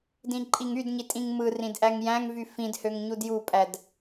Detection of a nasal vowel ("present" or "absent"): present